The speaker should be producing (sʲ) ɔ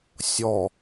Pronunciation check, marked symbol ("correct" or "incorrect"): correct